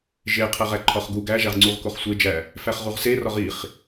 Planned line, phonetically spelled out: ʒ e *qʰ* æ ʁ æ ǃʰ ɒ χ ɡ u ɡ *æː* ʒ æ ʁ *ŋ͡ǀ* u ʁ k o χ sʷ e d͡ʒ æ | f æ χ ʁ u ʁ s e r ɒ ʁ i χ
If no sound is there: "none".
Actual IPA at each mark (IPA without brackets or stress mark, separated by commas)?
qʰ, æ, ŋ͡ǀ